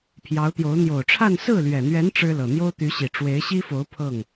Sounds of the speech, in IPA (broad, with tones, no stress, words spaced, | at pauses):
pʰjɑ˧˥ʊ̯t̪jo˧˥ʊ̯ n̪jo˨˩ʊ̯ʈ͡ʂʰa˥˧n sɹ̩˥˩lɥɛ˨˩n̪ɥɛ˧˥n ʈ͡ʂɻ̩˥lɤ˨˩ n̪jo˥ʊ̯t̪y˧˥ɕi˨˩ ʈ͡ʂwe˧˥ɪ̯ɕi˥fo˧˥ʊ̯ pʰɤ˥˩ŋ